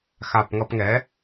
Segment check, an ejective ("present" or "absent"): absent